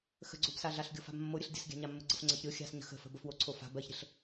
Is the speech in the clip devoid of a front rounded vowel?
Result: yes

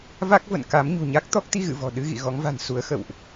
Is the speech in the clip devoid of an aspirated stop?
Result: yes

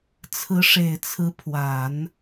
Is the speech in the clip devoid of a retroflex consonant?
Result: no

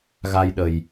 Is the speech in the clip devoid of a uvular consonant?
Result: yes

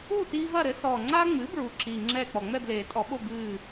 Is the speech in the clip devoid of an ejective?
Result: no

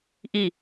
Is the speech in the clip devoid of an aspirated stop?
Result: yes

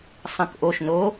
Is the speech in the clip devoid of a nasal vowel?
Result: no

